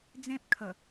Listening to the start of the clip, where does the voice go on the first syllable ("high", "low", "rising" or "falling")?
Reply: high